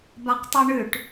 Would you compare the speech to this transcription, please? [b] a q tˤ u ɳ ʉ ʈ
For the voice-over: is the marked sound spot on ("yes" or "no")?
yes